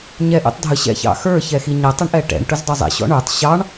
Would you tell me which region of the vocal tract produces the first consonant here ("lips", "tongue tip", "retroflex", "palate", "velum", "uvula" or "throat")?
palate